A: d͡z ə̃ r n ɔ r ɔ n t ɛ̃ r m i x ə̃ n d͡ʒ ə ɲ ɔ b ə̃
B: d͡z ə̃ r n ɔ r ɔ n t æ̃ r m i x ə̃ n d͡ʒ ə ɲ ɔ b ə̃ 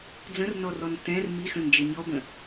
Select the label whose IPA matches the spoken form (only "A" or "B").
A